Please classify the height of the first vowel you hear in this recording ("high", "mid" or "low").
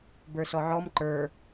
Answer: mid